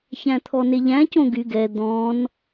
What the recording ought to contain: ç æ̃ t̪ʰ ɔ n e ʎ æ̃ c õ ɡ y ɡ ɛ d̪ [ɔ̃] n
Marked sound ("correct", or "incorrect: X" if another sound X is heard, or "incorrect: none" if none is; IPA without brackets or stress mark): correct